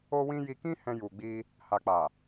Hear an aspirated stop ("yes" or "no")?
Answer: no